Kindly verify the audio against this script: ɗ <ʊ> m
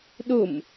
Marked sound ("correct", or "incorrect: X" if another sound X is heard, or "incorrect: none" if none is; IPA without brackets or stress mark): correct